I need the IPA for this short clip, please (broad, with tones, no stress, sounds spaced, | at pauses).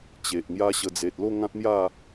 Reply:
t͡ɕ e˨ ʔ ŋ j a˦ ɕ ə˧ d͡z e˨ t̚ l o˥˧ ŋ ã˦ t̚ m j a˥˧